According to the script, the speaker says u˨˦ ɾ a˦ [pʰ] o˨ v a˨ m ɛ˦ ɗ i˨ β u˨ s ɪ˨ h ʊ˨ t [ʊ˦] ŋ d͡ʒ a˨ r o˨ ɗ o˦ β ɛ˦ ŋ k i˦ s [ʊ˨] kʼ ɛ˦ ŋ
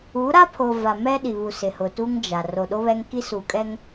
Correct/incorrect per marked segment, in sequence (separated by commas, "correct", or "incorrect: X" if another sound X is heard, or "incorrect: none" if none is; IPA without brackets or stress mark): correct, incorrect: u˦, incorrect: u˨